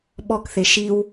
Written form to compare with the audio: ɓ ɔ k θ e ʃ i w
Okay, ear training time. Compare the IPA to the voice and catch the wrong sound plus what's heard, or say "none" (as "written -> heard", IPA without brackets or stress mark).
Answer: none